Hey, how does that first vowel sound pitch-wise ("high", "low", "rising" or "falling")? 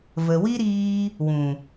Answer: low